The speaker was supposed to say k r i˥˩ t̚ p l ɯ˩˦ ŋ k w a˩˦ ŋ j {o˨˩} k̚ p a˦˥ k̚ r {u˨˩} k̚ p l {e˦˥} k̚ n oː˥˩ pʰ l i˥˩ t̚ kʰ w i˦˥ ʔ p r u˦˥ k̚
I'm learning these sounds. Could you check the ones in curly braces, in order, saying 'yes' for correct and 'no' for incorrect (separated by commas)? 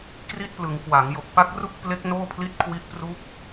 yes, no, yes